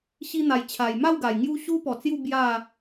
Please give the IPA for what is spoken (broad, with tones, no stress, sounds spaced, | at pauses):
ɕ i˧ n̪ a˨˩ j t͡ɕʰ a˨˩ j m a˥˧ w ɡ a˨˩ j ŋ j u˧ ɕ u˦ p ɔ˨˩ t͡s j u˥˧ b j a˥˧